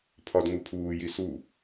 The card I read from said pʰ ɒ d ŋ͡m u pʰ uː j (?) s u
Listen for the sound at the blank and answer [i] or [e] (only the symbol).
i